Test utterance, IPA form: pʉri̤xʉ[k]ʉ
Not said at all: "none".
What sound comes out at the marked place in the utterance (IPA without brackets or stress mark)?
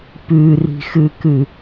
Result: k